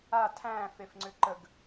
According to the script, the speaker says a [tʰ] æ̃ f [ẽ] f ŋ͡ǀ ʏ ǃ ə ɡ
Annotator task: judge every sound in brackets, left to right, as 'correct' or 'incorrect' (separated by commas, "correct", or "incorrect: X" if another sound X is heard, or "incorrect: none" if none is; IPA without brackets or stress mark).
correct, incorrect: e